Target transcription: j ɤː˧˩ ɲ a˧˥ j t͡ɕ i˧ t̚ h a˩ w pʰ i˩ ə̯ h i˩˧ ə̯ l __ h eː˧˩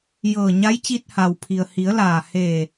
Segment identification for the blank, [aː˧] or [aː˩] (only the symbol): aː˩